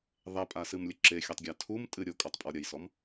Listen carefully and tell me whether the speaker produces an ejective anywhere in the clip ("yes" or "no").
yes